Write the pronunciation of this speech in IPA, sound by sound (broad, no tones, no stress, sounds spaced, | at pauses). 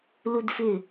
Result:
l u d f ʏ